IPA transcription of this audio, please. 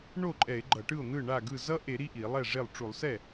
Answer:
ɳ o˥˩ ǃʼ ɛ˧˩˧ e̯ ɡ͡ǃ ʌ˧˩˧ ʈ ɯ˥˩ o̯ n̪ ɯ˥˩ ɳ a˥˩ ɡ ɯ˥˩ z ʌ˦˥ ʔ e˧˩˧ ɾ i˥˩ ʔ i˧˩˧ lˠ ɛ˥˩ ʐ e˥˩ lˠ ʈ͡ʂ u˧˩˧ lˠ s ɛ˥˩

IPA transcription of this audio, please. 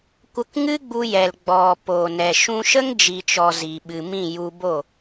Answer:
kʷ ə˧ k ŋ ɨ˦ ɡ͡b u˧ j ɛ˨ l ɡ͡b ɔ˨ p o˨ n ɛ˨ ʃ ũ˧ ʃ ə˦ ŋ d͡ʒ i˨ t͡ʃ ɔ˨ z i˨ ɓ ɨ˨ m ĩ˦˨ j u˧ b o˦˨

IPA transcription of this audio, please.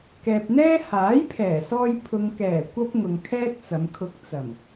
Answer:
k ɛː˨ p̚ n̪ ɛː˥ h aː˨˥ j pʰ ɛː˨˩ s ɔː˧ j pʰ ʊ˨ ŋ k ɛː˨˩ kʷ ɐ˥ p̚ ŋ ʊ˨ ŋ kʰ ɛː˥ t̚ t͡s ɐ˨˧ m kʰ ʊ˧ k̚ t͡s ɐ˨˩ m

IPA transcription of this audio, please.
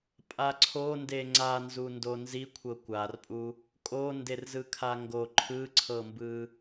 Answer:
pʼ a ǀʰ o n d e ŋ͡ǀ a n z u n d o n z i kʷʰ ɤ kʷ a r pʼ u | kʼ o n d e r z ɯ kʰ a ŋ ɡ o ǃʰ ɯ ǀʰ ɤ m b ɯ

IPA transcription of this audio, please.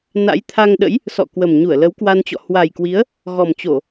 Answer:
n a̰˧˥ j t̪ʰ a˧ ŋ ɗ ə̰˧˥ j | s ɔ̰˧˨ k w ə˨˩ m ɲ u˧˩ ə̯ l ə˨˦ w k w a˧ n t͡ɕ ɔ̰˧˨ h w a˨˩ j k w i˨˦ ə̯ | ɣ ɔ˨˩ m t͡ɕ o˧˩˨

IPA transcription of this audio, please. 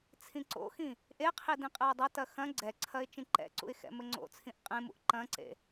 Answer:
t͡sʰ ĩ ǀ o̰ x ĩ | ʔ e qʰ i d ĩ qʼ ɛ ʊ̯ dˤ ɐ t ɐ x ɐ̃ ɡ͡ǀ ɛ ǀʰ ɐ ɪ̯ t͡ʃ ĩ ǃ ɛ̰ ǀ ṵ ɪ̯ x ɛ̰ m ɘ ŋ͡ǀ o̰ t͡sʰ ĩ ʔ qʼ ẽ m ṵ ʔ ǃ ɐ̃ ǀ ḛ

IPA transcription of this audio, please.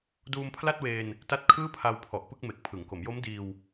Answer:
d uː˧ m pʰ l a˥˩ t̚ w eː˧ n | t a˦˥ t̚ kʰ ɯː˥˩ pʰ a˧ w pʰ ɔ˨˩ ʔ p ɯ˥˩ k̚ m e˨˩ k̚ pʰ ɯ˩˦ ŋ k o˩˦ m j o˦˥ m d iː˧ w

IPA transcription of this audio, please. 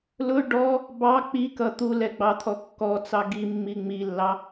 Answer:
l ʊ ɖ ɔ | b ɑ k͡p i k ʌ t̪ u l ɛ ɡ͡b ɑ t̪ʰ ɔ kː ɔ t͡s ɑ ɡ i mː i ŋ͡m i lː ɑ

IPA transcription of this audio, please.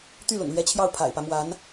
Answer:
t̪ y˥˩ l ʊ̰˨˩ ŋ l ɥ ɛ˧˥ t͡ɕʰ j ɑ˥˩ ʊ̯ pʰ a̰˨˩ ɪ̯ p ä˦ m w a˧˥ n

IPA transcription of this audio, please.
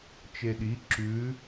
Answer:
t͡ʃ e ɗ i ǁ ʉ

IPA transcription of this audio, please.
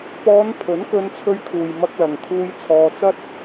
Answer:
p ɔː˨˧ n pʰ ɵ˨˥ n k ɵ˧ n t͡sʰ ɵ˧ ɥ kʰ uː˨ j m ɐ˧ k̚ l ɐ˨ ŋ t̪ʰ uː˧ j t͡sʰ ɔː˧ t͡s ɐ˥ t̚

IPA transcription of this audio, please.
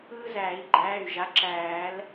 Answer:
ɯː˦ z æː˨˩˦ i̯ ɡ͡ǃ æː˩˧˩ y̯ ʒ a˩˥ ǁ æː˨˩˦ l

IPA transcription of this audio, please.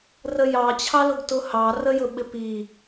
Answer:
r ə j ɑ t͡ɕʰ ɑ l ʊ ɡ t ʊ h ɑ r ə j ʊ ɓ ɪ p i

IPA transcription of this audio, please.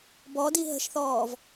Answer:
b ɔ d i ɦ ə̤ ʃ θ ɔː v

